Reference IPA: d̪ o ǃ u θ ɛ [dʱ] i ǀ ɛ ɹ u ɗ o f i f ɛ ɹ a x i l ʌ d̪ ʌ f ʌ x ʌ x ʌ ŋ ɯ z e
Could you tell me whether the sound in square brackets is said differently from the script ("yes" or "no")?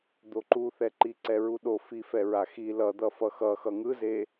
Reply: yes